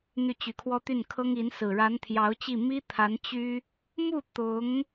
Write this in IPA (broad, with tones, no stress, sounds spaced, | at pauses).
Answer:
n̪ y˥˩ t͡ɕ y˧˥ kʰ w ɔ˥ t̪ y˥˩ n kʰ ɤ˥ ŋ i˧˥ n s ɹ̩˨˩ ɻ a˧˥ n t̪ʰ j ɑ˧˥ ʊ̯ t͡ɕ i˥˩ m i˥ t̪ʰ a˧˥ n t͡ɕ y˥ | m u˥˩ t̪ ʊ˧˥ ŋ